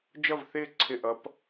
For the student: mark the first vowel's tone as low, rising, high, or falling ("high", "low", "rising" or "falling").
falling